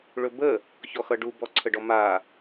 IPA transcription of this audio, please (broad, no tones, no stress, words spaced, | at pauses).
ɭɵbə | çɔxʌɖu bɔǀʰəɖɔma